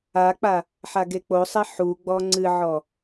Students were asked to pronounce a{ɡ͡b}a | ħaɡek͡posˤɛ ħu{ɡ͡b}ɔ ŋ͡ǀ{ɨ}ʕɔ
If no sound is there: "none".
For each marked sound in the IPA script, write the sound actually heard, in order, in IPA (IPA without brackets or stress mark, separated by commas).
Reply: k͡p, ɡ͡b, ɨ